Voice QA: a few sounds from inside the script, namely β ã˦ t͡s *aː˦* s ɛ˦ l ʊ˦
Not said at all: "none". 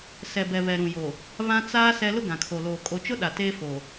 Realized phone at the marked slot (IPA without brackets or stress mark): aː˦